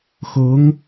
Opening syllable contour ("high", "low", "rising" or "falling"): rising